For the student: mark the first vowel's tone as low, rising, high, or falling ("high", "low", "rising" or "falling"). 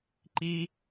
high